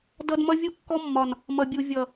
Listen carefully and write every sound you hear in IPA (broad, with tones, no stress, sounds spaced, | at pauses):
d ʌ˦ d m ʌ˦ vʲ u˦ kː ɔ˦ mː ɒ˨ n | m ʌ˨ bʲ u˨ vʲ ʌ˨